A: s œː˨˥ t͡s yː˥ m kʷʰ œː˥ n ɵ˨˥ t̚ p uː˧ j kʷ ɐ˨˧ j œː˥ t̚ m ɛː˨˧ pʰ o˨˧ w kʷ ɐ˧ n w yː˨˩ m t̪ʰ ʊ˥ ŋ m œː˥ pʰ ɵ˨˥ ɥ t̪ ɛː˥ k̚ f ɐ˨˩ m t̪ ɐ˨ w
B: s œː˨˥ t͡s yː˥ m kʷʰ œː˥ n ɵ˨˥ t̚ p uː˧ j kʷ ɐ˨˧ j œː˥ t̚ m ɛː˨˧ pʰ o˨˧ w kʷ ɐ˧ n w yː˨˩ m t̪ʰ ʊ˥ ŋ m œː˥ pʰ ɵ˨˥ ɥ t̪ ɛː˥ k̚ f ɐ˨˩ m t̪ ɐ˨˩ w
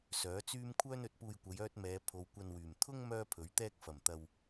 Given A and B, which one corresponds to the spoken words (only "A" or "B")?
A